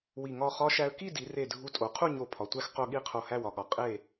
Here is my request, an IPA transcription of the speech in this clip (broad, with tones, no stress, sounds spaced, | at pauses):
w i˧˩ ŋ ɒ˥˧ χ ɒ˥ ʃ æ˧ ə̯ k i˥˧ d i˩˧ r e˧˩ dʱ u˧ tʼ o˩˧ qʰ u˥˧ ɲ o˧˩ pʰ ɒ˩˧ tʷ æ˥˧ x q o˥˧ ɠ i˥˧ qʰ o˧˩ h æ˥˧ w ɒ˧˩ ɠ ɒ˧˩ qʼ e˥˧